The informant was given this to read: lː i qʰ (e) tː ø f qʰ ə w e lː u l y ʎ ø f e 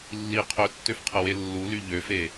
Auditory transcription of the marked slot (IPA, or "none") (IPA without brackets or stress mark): ø